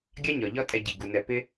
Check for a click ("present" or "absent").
absent